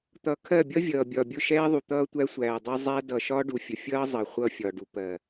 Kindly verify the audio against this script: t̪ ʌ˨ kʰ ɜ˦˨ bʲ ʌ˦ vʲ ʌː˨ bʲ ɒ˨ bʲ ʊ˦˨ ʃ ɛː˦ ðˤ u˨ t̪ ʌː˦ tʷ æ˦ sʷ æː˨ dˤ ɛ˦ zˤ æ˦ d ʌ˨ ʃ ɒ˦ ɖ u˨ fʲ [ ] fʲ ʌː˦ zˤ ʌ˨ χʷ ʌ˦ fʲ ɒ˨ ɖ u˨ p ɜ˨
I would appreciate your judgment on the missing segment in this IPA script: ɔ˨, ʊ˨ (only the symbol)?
ʊ˨